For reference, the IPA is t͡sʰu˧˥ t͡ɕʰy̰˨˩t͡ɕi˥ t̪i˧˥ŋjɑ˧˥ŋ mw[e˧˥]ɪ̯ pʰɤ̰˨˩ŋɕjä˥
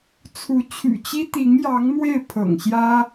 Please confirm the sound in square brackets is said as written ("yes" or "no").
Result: no